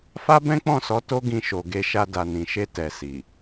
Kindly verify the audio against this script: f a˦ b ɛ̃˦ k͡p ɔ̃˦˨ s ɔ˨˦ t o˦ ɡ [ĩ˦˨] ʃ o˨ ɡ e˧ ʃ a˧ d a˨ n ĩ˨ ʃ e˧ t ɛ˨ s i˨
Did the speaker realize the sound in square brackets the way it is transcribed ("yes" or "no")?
no